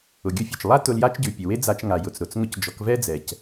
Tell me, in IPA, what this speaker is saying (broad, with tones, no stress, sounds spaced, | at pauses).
ʊ˩ ɡʲ ʊ˧˥ fʲ ʉ˩ t͡ʃ lˠ a˥ t ʊ˧ l j a˥ t͡ʃ ɟ ʉ˩ pʲ ʊ˩ w e˥ d͡z a˧ t͡ʃ ŋ a˩ j ʊ˩ t͡s ɾ ʊ˩ t͡s ŋ ʊ˧˥ c d͡ʒ ɔ˩˧ k v ɛ˥ d͡z ɛ˩ c